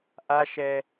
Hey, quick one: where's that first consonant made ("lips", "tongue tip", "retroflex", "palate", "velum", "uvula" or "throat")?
throat